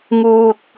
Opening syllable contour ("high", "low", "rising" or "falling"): low